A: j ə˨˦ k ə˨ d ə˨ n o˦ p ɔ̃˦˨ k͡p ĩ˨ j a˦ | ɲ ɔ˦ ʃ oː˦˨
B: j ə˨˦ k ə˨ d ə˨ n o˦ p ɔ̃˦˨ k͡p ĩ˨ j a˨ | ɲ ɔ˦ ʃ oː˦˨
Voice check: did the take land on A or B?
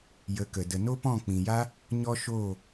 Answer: A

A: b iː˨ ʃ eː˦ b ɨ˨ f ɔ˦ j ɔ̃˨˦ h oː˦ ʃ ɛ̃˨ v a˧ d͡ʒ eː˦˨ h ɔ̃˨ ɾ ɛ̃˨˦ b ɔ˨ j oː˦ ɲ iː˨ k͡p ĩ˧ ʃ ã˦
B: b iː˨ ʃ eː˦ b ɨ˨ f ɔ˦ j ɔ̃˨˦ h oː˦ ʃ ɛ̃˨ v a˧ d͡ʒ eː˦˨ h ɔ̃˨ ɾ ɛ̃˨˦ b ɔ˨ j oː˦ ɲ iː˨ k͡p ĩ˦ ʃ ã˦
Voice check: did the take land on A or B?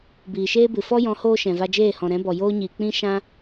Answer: B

